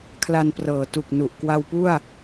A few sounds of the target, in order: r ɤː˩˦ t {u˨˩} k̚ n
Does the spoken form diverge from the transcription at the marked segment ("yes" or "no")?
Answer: no